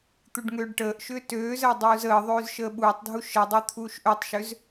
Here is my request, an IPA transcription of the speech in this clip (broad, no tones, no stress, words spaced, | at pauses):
t̪uɖŋøːɖʈəːʔʃʏː tøːzəː dˤuːzəːðˤøːz ʃəːɓuːtˤdʱu ʃədˤø t̪ʰuːʃʔøtˤʃøz